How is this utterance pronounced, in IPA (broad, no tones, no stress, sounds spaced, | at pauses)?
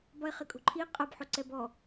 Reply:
b ɒ e̯ χ ɪ kʼ o̤ ǃʰ i qʼ ɐ b ħ o ǀ ɛ b ɔ